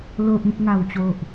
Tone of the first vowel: low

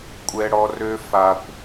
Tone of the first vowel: high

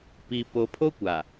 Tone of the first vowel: low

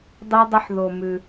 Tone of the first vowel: high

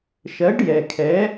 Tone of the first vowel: rising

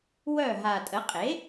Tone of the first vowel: falling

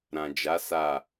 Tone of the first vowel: low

